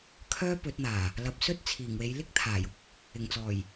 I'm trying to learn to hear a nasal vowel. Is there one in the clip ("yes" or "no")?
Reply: no